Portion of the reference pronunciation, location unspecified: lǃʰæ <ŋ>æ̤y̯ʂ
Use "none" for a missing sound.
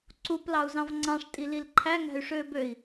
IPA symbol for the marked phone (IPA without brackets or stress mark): ŋ